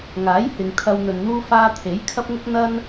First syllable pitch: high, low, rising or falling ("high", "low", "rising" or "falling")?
rising